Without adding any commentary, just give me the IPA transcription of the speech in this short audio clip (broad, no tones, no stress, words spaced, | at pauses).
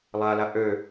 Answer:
lˠala ʔø